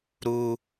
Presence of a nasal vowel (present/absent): absent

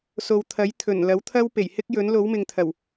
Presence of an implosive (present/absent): absent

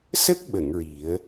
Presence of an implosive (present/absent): present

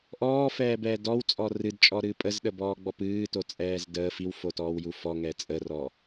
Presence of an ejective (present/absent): present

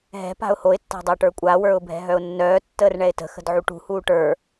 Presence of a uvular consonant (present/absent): absent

